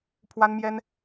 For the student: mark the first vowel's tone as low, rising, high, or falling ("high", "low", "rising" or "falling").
high